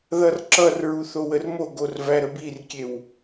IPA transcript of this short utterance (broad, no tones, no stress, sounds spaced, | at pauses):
ð ʌ r ǁ ʌ r ɹ u θ o w ə r m o ɡ o r v æ ɾ ə b i r kʲ e w